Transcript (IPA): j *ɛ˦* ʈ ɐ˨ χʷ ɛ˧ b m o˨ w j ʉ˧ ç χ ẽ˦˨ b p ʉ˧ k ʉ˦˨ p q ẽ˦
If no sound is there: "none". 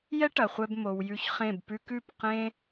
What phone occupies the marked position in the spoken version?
ɛ˦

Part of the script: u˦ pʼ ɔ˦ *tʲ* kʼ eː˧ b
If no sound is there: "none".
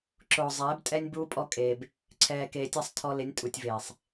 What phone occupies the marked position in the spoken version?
none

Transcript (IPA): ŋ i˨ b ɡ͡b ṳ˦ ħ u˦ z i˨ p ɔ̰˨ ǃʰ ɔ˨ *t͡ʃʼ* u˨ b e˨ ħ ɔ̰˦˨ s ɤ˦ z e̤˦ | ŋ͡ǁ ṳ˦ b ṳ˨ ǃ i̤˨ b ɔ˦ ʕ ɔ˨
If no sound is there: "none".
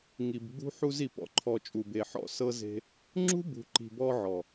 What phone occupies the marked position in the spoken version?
t͡ʃʼ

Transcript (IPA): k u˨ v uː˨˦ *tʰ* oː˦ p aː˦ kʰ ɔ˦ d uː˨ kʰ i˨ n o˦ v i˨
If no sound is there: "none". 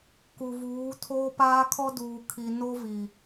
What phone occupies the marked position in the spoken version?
tʰ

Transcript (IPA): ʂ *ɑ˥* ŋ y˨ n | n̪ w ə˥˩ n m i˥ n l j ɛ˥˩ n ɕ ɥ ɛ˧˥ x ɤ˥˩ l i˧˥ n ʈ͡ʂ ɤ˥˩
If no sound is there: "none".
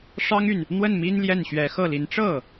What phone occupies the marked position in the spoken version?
ɑ˥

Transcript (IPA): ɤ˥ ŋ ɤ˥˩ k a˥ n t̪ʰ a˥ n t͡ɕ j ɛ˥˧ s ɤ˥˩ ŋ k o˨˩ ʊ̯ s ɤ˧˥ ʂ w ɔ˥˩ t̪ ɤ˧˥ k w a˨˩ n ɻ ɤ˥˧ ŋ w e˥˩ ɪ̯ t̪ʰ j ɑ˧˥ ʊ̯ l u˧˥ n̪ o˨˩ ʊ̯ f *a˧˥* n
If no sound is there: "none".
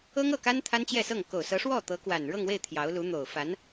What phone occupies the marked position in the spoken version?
a˧˥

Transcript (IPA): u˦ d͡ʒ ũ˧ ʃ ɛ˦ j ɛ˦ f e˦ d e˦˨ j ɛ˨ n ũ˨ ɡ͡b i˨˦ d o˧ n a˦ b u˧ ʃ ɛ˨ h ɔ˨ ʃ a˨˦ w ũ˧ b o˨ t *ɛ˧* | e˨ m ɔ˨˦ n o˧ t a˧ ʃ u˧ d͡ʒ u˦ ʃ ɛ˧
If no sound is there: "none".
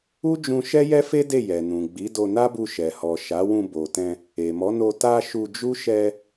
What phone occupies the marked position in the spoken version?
ɛ̃˧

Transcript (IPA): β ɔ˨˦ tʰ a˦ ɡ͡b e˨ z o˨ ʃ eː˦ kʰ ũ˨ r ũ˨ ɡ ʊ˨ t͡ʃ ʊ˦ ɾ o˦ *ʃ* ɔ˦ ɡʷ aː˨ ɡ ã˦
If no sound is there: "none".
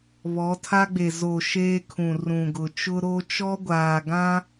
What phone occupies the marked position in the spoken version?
t͡ʃ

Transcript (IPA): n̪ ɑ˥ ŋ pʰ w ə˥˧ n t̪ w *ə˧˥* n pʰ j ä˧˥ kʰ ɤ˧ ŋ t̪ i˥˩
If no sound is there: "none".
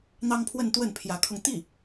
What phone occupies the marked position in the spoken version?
ə˥˩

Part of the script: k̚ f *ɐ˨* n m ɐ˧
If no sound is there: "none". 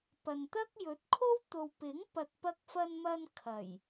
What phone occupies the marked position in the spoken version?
ɐ˧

